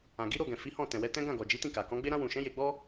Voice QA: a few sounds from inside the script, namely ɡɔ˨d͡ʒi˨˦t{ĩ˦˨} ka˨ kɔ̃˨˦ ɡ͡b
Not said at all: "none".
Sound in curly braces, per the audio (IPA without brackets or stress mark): ĩ˦˨